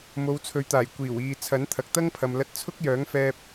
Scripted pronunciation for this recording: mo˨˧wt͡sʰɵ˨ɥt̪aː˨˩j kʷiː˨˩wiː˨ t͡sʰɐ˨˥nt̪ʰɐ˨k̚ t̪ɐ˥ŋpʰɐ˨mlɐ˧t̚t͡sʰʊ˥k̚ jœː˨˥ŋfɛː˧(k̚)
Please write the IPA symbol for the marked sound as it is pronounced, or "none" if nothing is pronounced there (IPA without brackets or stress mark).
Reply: p̚